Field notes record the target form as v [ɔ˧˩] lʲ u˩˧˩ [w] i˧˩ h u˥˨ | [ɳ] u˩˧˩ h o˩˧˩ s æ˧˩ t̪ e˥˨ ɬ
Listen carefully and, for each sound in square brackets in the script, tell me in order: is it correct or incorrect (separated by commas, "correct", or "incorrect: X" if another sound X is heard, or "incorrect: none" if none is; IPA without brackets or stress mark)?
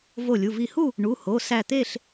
incorrect: o˧˩, incorrect: v, correct